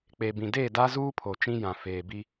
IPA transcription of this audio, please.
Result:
k͡p e˨ b ĩ˨ d eː˦˨ d a˦ z uː˦ pʰ o˨ t͡ʃ ĩ˦ j ã˨ f eː˨ b i˦

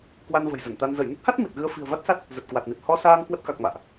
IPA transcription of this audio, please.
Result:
k w a˧ n v ə̤˨˩ j z ə˧˩ n t̪ a˧ n z ə˧˩ j n ə˦˥ t̚ h a˦˥ t̚ m i˨˩ t̚ ɣ ɨ˧ ə̯ f i̤˨˩ ə̯ v a˦˥ t̚ s a˦˥ t̚ | z ə˨˩ t̚ k w a˨˩ t̚ n i˨˩ t̚ h ɔ˧ s aː˧ ŋ k w ə˦˥ t̚ k a˨˩ k̚ m a̰ː˧˨ ʔ

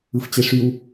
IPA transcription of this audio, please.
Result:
ɯ f t͡ɕ e ʂ y w

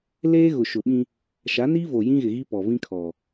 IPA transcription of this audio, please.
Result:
l eː˦ ɣ ʊ˨ ʃ ʊ˨ ɓ ĩ˦ | ʃ a˨˦ n iː˦ v o˨ j ĩ˦ ɣ ɪ˨ ɣ i˦ p ɔ˨ v ĩ˦ kʰ ɔ˨

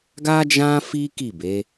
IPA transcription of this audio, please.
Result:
ɡ a˦ d͡ʒ ã˦ f i˦ k i˦˨ b e˨˦

